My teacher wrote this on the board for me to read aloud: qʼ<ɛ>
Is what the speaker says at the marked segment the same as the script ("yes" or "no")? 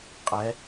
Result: yes